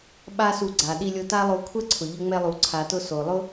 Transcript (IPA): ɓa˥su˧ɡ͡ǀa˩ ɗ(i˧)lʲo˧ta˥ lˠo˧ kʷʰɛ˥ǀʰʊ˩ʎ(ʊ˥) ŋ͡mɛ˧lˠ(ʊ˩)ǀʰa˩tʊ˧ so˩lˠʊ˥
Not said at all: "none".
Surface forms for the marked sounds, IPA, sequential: i˧, ʊ˧, u˩

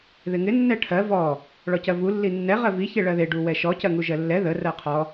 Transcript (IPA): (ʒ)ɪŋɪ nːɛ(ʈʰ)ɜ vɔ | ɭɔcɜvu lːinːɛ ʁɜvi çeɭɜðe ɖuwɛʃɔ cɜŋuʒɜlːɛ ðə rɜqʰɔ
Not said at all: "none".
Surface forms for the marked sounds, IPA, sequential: ð, ʈʰ

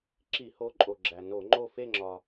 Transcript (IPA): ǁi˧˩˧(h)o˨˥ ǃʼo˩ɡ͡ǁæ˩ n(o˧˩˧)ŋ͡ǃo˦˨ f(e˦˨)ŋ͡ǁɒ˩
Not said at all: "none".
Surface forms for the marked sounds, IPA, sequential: h, o˧˩˧, e˦˨

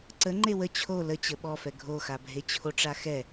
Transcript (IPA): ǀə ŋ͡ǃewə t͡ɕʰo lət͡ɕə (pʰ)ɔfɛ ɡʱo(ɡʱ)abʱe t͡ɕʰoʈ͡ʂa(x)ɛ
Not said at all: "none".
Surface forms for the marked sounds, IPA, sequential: ɓ, x, x

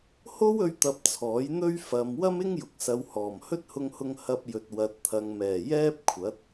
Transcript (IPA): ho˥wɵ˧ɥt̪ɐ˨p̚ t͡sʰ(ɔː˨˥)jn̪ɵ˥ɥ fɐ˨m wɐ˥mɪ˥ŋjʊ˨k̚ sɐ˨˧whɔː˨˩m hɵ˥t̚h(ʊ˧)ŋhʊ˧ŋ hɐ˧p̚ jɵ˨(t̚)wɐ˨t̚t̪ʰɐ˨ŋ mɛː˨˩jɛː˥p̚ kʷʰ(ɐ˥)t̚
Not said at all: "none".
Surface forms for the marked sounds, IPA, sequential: ɔː˨˥, ʊ˧, t̚, ɐ˨˥

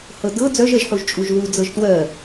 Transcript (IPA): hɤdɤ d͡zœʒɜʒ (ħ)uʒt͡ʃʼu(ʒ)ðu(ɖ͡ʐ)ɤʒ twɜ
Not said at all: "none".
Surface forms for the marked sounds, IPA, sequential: ħ, ʒ, d͡z

